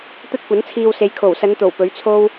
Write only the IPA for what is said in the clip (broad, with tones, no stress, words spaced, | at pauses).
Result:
t̪ɐ˥t̚kʷɐ˨˥nt͡sʰiː˧wse˨˧j kʰo˨˩wsɐ˨˧nt̪o˨˩w pɵ˨˥ɥt͡sʰo˥w